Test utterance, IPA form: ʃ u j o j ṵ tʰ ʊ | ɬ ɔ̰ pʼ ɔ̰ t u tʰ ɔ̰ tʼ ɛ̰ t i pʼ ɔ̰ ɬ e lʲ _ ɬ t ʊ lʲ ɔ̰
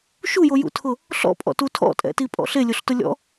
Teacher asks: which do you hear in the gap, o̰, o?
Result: o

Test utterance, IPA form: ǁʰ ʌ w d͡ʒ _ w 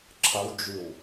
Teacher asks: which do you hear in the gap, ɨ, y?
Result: y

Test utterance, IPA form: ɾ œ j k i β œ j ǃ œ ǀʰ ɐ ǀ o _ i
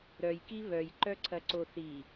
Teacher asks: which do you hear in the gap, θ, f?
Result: θ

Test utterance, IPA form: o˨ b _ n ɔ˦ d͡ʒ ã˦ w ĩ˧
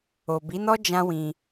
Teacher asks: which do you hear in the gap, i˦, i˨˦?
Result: i˨˦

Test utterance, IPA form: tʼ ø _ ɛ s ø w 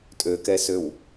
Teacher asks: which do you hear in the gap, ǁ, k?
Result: k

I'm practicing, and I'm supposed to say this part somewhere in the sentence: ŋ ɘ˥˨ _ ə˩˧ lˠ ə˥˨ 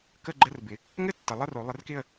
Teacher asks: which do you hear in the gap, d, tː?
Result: tː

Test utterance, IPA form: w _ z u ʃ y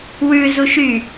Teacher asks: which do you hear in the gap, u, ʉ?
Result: ʉ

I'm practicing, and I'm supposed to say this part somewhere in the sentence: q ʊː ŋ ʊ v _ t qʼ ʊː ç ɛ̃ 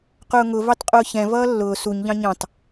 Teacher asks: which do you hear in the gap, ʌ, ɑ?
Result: ɑ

